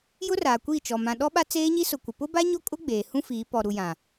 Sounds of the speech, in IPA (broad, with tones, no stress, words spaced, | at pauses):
jʊ˦raː˨kʷiː˦˨t͡ʃɔ˨ mã˨ɗɔ˦ɓa˦ t͡seː˦ɲi˦ sʊ˨kʷɪ˨ pʊ˦ba˦ɲo˦kʼʊ˦ ɡ͡beː˨hũ˦ fiː˨˦ pɔ˨ɾu˨jã˨